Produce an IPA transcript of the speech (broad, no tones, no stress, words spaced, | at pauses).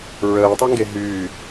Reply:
ɹəːtˤɛŋɡe ɦyː